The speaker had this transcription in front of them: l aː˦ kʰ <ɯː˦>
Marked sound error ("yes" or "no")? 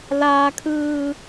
no